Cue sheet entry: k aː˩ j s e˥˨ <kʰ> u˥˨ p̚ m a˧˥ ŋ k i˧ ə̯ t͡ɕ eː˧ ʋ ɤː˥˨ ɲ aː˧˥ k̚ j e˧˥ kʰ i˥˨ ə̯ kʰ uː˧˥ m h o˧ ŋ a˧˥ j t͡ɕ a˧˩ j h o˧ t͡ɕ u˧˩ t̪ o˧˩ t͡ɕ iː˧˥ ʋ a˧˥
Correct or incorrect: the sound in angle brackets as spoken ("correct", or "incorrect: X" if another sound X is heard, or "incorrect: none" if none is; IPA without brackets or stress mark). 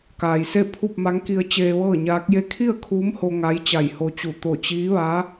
incorrect: pʰ